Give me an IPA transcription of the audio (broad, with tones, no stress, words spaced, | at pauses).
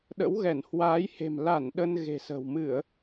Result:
ɗə̰˧˥wɣɛ˧˩n hwaː˨˦jhe̤˨˩m la˧˩n ɗə˧n ɣe̤˨˩sə̤˨˩w mɨ˧˩˨ə̯